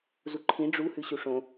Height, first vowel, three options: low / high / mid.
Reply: high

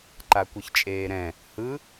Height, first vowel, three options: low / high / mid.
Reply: low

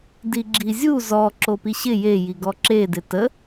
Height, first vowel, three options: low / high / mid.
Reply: high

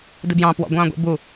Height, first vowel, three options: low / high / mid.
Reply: high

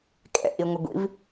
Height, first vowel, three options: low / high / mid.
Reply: mid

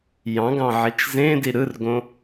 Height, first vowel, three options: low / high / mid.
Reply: low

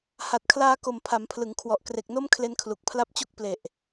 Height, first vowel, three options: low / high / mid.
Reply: low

